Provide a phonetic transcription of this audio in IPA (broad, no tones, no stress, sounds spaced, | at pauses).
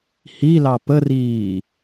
h i l ɑ p ə r iː